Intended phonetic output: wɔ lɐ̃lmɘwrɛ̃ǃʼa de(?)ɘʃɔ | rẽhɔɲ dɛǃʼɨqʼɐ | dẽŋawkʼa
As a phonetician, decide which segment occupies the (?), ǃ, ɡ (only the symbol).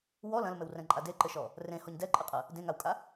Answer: ǃ